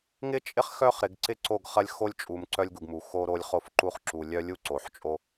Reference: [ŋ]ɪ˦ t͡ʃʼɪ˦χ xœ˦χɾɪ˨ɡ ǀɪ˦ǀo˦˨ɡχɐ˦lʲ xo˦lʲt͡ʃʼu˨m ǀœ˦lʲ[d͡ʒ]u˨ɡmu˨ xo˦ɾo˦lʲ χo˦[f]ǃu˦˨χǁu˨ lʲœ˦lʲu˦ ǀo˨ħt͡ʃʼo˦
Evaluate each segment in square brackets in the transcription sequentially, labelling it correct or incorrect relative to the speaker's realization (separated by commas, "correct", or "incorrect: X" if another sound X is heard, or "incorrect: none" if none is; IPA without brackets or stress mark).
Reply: correct, incorrect: ɡ, correct